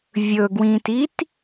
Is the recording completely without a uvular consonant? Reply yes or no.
yes